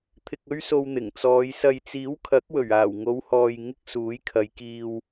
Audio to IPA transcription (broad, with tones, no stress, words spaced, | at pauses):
t̪ʰɪ˧k̚ɵ˥ɥso˧w n̪ɪ˨˩ŋt͡sɔː˨˧j sɐ˨jt͡siː˨˥w kʰɐ˨˥k̚wɵ˨˩ɥaː˨˩w ŋo˨˧whɔː˨jŋɪ˧k̚ suː˨˥jkʰɐ˨˧jkiː˧w